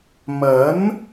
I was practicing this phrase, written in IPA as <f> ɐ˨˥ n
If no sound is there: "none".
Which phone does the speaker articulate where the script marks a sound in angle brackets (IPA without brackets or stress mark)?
m